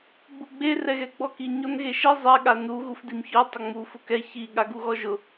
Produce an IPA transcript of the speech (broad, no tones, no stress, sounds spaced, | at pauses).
ɡ͡b u ɡ͡b e r ɛ ɣ ɛ ɡ͡b ɔ k i ɲ ɔ n ɣ e ʃ i zˤ ɛ ɠ a n u ɣ u f d i m ç ɔ tˤ ʊ ŋ͡m u f ʊ k ɛ ç i ɠ a ɡ u ɣ ɔ ʒ ʊ